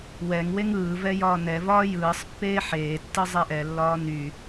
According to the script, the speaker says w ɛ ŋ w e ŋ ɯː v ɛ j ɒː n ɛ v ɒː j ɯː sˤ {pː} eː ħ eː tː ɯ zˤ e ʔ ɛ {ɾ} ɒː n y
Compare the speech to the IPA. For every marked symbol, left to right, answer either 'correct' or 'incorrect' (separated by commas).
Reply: correct, incorrect